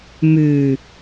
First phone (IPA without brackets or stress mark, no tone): m